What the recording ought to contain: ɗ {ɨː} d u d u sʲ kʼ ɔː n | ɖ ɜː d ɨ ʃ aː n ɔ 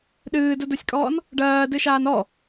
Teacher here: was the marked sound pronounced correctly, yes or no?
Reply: yes